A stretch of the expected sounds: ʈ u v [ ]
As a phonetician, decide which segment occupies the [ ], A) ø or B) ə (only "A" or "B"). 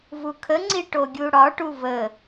B